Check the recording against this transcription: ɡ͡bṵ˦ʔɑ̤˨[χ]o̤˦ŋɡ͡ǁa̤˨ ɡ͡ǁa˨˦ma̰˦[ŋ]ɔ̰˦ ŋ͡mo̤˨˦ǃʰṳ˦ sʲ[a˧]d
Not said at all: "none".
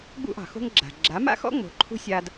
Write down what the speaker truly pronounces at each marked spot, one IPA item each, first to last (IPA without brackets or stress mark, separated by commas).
x, x, a˦